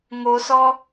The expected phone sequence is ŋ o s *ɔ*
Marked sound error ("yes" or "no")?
no